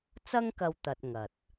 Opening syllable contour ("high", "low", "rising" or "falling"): high